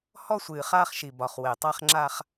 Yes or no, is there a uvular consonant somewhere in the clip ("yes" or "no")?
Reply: yes